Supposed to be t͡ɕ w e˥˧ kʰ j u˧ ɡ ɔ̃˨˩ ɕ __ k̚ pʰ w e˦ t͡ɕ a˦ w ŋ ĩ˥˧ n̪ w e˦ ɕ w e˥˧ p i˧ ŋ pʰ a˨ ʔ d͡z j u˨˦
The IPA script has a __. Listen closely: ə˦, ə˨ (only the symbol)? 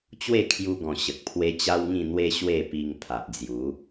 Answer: ə˨